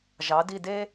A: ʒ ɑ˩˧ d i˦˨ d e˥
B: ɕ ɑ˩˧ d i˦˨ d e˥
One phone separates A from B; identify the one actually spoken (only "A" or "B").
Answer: A